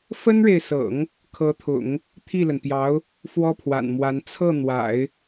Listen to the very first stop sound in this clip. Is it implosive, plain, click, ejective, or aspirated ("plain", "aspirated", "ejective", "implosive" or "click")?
aspirated